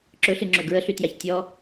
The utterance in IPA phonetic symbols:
ǁɵɬɨŋ͡ǁɵ ɡɹəɬytjaç tʲɔ

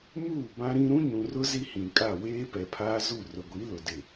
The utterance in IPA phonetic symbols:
muː˦˨ bã˦ɾĩ˦ ɾũ˦ɲũ˨rʊ˦ zi˦hĩ˨kʼa˦˨ weː˦pɛ˨pʰaː˦zu˦˨ rʊ˨ɡʷi˨˦lʊ˨ dɪ˨

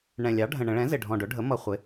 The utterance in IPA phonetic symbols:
ɳɛ̃˨˩ lʲɑ˩˥ɖʱə̃˨˩ɳə̃˧˩˧ ɭɛ̃˩˥zɪ˨˩ɖʱɔ̃˨˩ ɖʊ˩˥ɖʱə˩˥ mʌ˧˩˧χʷɪ˩˥

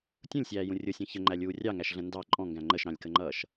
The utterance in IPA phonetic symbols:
tʲũlʲsʲæːjũ rʲʊsʲɔ̃ çəŋ͡ǃælʲuː rʲɑŋæʃɮə̃ ndɑ ǃʼɔ̃ŋɡæ̃ ŋ͡ǃəʃɾɑ̃lʲkəŋ͡ǃʌːʃ

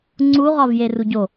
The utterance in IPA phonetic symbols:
ŋ͡ǀu ʁɒvjeruɟo

